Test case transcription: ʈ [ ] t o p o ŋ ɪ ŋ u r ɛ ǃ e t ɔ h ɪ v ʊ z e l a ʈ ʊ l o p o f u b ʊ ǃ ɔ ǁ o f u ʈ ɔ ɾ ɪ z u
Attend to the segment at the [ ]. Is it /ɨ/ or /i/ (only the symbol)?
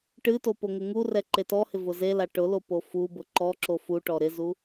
ɨ